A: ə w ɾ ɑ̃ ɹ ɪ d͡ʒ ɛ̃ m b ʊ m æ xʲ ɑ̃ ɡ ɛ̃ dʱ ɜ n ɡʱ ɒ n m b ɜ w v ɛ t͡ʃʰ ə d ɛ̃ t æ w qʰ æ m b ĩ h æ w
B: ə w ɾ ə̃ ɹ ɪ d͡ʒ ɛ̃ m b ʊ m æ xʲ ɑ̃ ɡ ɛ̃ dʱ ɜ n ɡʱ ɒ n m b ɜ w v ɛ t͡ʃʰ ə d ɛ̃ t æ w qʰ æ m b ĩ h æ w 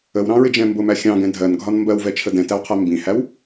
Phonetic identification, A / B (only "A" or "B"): A